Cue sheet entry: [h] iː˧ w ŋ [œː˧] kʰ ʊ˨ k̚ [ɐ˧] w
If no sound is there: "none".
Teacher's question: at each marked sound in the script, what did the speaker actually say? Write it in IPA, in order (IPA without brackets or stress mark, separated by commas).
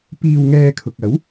p, ɛː˧, ɐ˨˥